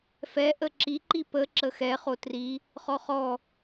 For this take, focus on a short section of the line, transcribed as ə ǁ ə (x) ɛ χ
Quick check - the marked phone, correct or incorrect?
correct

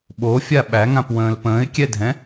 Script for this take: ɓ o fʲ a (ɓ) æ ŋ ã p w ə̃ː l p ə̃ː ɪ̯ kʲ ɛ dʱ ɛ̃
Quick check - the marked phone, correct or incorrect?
correct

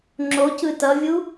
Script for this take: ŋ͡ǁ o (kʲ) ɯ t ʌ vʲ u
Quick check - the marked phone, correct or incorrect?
incorrect: c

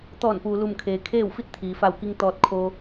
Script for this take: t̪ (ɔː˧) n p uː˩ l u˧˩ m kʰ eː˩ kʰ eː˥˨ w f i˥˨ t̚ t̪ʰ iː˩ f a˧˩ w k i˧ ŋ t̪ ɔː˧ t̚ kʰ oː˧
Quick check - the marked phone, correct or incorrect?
incorrect: ɔː˧˩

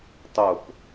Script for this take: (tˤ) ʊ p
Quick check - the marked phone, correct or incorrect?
correct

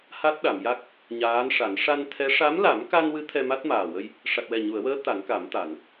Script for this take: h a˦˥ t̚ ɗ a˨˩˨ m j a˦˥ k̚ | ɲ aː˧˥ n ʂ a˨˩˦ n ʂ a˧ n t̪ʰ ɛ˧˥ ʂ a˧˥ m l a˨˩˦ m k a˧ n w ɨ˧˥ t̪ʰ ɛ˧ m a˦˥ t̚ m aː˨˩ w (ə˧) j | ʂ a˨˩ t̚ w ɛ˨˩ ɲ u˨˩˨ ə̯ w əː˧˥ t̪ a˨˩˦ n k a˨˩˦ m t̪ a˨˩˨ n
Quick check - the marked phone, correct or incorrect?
correct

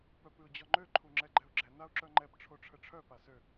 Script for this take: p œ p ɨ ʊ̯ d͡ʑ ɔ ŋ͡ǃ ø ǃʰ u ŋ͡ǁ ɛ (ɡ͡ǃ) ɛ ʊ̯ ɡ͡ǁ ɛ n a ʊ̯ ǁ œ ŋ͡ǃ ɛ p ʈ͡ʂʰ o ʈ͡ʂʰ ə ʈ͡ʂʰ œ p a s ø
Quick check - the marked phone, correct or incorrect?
correct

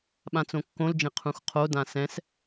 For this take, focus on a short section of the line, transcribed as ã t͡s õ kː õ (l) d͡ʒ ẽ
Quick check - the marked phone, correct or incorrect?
correct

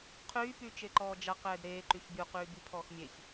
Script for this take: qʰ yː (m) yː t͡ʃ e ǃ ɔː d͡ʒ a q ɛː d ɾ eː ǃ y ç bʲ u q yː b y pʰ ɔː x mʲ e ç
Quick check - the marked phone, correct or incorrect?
incorrect: p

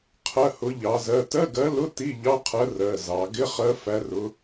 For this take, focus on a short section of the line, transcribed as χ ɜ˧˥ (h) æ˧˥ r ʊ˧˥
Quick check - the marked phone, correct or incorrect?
incorrect: f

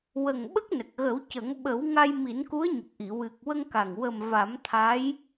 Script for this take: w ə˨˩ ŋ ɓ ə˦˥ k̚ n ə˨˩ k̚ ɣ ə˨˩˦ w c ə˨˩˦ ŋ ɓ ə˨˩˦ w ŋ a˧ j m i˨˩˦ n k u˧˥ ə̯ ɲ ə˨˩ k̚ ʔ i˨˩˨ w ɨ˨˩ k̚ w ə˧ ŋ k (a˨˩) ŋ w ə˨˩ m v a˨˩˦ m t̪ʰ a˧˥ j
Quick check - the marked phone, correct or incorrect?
correct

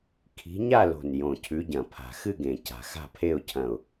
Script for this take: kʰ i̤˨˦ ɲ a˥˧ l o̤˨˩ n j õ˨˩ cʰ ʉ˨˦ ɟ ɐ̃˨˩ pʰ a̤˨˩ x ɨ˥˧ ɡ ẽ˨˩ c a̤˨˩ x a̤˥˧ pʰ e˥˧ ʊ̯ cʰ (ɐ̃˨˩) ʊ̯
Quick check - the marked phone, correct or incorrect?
correct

